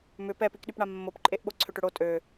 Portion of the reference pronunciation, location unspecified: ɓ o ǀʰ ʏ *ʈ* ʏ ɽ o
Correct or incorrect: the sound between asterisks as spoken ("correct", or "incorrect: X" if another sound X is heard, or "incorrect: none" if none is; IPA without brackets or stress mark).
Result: correct